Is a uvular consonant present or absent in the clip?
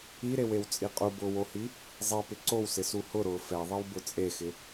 present